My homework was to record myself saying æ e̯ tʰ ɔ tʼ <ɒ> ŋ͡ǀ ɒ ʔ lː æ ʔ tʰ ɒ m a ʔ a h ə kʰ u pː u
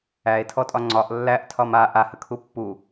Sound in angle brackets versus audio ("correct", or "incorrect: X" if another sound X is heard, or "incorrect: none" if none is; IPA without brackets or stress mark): correct